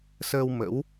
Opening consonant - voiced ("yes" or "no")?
no